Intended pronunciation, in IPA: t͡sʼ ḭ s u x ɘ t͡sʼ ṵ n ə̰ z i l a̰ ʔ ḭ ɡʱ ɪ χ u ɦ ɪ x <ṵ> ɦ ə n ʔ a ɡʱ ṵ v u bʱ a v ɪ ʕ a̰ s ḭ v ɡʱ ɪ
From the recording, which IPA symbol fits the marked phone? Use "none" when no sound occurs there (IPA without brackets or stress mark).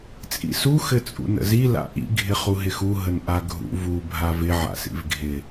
u